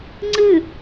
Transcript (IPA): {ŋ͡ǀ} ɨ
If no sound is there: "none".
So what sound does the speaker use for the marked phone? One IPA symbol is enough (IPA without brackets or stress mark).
ŋ͡ǀ